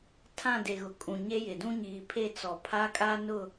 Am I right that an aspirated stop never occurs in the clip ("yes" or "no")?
no